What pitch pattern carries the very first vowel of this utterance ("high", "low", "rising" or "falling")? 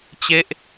falling